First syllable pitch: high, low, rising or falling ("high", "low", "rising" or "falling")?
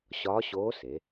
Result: rising